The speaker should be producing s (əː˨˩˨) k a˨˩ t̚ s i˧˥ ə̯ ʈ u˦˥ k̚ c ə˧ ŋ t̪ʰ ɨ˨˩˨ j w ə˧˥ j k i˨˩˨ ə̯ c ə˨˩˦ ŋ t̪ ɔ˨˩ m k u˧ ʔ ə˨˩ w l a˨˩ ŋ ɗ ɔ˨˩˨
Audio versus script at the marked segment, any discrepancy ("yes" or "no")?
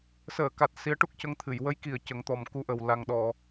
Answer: no